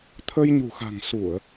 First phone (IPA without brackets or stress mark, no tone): t̪ʰ